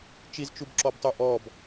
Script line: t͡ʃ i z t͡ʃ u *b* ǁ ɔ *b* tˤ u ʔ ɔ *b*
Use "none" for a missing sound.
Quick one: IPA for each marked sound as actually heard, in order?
b, b, b

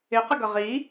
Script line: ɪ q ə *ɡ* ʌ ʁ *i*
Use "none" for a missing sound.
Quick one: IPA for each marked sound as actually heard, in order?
ɡ, i

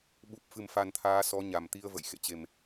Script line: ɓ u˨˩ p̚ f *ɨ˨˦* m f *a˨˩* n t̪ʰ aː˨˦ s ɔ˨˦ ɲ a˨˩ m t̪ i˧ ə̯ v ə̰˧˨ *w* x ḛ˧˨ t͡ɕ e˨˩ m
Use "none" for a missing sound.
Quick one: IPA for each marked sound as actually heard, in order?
ɨ˨˩, a˨˩, j

